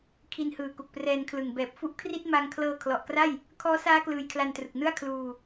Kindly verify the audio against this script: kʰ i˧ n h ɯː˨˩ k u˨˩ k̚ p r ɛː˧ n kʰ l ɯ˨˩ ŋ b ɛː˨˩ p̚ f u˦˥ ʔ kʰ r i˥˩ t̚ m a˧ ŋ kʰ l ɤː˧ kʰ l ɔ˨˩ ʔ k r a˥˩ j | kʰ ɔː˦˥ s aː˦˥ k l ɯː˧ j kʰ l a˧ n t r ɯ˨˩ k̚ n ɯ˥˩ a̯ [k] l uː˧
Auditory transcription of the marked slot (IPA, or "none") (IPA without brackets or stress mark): kʰ